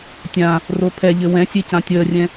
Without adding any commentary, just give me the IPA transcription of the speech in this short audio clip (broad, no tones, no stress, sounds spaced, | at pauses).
tʲ ã | r o pʰ ɛ ʎ ɘ w ɛ̃ sʲ e c ã tʲ əː rʲ ɛ̃